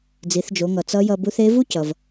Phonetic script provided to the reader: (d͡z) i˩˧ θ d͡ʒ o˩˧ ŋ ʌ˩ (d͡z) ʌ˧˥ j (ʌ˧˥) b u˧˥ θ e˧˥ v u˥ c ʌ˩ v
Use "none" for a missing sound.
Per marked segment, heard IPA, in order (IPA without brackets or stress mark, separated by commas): d͡z, t͡s, ʌ˧